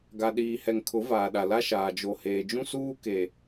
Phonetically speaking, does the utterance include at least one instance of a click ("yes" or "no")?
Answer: no